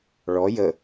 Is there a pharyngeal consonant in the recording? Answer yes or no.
no